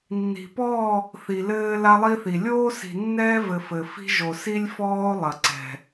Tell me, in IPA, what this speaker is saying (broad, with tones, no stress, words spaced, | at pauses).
nːi̤˨pɔː˦˨ | θi˨lɘː˦ la˦lˠi˦θi˨ lʲoː˦si̤˨nːɛː˦vɘ˨ fɘ˨fi̤˦ ʒo˨si˦lʲfɔː˦o̯ lˠɐ˨ǀɛ̤˨